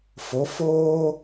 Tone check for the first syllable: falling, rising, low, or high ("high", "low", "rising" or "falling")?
rising